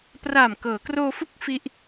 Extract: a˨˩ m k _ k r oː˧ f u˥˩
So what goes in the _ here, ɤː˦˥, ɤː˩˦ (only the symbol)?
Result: ɤː˩˦